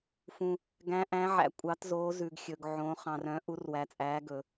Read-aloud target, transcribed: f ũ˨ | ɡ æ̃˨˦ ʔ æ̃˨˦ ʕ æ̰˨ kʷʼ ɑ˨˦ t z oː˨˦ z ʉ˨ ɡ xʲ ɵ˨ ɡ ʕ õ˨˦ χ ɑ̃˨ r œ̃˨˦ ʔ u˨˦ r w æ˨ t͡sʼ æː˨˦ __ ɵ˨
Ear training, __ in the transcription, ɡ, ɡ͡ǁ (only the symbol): ɡ